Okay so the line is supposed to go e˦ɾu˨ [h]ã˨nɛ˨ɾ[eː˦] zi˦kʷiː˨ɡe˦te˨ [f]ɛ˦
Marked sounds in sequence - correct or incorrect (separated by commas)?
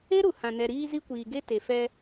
correct, incorrect, correct